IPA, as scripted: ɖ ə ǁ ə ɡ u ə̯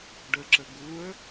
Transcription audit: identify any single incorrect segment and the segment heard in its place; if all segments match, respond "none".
none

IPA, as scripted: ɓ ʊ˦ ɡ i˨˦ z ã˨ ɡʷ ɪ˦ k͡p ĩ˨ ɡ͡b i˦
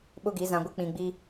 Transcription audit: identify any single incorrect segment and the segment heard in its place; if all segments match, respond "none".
none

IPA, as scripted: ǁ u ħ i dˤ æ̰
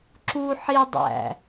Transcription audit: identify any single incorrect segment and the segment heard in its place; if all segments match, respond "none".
none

